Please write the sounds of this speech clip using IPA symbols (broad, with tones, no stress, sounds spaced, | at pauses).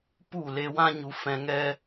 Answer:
p u˦˨ l e˧ w ã˦ ɲ u˧ f ɛ̃˧ ŋ ɛ˦